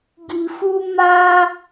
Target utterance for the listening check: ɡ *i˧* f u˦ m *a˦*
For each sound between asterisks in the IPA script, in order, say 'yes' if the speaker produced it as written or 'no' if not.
yes, yes

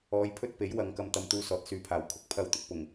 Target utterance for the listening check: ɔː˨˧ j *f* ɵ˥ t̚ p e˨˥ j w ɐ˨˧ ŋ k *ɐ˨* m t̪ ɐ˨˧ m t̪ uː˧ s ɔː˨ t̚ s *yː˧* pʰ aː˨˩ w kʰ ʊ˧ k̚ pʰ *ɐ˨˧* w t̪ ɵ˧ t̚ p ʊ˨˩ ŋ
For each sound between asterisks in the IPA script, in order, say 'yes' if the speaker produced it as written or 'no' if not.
no, no, no, no

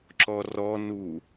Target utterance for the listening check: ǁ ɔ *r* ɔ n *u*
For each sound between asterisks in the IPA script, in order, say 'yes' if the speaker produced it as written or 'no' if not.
yes, yes

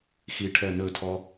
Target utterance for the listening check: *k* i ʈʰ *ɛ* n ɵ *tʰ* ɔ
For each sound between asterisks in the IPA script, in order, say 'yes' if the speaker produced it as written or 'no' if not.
no, yes, yes

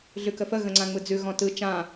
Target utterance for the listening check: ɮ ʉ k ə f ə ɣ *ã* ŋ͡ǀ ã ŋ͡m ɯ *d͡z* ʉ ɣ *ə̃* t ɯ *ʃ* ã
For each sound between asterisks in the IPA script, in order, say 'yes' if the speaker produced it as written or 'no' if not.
no, yes, no, no

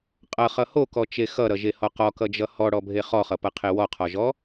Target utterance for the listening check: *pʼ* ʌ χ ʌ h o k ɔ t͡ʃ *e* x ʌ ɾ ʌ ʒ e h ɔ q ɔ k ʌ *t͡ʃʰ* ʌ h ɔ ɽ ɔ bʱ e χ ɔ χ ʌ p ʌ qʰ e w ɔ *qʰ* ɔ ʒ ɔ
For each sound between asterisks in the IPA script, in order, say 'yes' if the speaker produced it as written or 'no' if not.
no, yes, no, yes

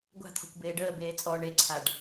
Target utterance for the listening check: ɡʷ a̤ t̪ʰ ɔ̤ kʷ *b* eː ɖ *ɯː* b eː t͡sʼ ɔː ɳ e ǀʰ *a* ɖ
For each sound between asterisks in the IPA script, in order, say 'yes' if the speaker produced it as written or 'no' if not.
yes, no, yes

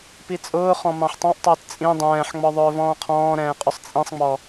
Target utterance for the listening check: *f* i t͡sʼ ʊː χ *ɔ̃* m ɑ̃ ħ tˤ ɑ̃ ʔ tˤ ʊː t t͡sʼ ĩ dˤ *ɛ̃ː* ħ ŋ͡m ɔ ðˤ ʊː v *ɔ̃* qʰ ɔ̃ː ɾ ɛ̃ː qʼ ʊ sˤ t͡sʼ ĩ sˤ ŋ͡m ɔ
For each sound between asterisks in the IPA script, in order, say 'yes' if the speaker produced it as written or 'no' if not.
no, yes, yes, no

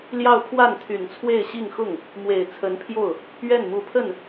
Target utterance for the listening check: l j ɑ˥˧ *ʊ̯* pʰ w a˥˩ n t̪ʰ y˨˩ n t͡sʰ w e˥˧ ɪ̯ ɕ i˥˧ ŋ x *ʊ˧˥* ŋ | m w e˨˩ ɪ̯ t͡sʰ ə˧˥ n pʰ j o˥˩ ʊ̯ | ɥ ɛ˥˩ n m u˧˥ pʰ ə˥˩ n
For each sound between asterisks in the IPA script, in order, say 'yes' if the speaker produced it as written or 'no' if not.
yes, no

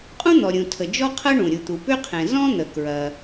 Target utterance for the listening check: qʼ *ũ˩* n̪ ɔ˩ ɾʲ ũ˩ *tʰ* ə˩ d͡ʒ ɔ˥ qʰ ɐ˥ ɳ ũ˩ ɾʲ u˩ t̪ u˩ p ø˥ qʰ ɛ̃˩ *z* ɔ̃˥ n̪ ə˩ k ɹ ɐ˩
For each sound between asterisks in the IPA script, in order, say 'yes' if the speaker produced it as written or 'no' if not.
no, yes, yes

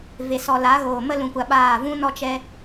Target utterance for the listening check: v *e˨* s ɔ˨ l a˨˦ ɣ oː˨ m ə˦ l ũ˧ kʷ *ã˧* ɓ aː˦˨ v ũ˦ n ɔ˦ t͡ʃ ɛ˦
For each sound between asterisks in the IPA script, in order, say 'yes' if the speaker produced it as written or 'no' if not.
yes, no

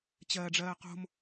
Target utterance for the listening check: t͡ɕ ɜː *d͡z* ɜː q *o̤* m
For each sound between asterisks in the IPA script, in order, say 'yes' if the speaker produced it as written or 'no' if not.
no, yes

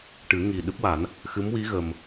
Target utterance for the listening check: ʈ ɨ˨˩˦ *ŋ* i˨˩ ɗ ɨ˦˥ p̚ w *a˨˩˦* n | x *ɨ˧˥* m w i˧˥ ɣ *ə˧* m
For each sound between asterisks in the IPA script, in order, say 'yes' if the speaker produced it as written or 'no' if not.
yes, yes, yes, yes

